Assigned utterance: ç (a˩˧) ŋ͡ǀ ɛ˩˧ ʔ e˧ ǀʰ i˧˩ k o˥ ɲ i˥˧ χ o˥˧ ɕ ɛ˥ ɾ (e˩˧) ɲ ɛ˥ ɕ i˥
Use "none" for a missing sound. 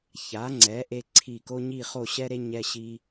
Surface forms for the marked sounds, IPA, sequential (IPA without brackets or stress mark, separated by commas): a˩˧, e˥